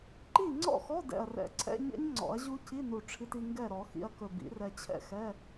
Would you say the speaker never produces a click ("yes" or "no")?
no